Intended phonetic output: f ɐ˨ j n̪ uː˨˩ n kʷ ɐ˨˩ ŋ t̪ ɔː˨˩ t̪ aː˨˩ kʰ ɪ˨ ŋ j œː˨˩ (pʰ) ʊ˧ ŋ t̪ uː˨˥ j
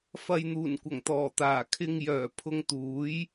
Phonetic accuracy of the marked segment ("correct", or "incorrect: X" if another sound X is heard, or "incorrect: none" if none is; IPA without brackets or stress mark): correct